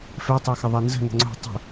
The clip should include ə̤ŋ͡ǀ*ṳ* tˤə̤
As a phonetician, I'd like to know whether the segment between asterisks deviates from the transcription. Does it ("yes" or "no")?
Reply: yes